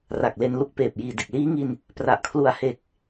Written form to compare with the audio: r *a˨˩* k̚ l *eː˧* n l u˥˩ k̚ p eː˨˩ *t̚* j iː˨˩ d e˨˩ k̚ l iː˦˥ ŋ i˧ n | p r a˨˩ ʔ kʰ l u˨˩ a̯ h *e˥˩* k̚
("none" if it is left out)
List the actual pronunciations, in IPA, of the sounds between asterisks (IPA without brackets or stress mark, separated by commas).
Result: a˨˩, e˧, p̚, e˨˩